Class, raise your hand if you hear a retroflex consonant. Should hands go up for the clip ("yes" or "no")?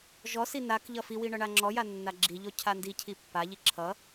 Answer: yes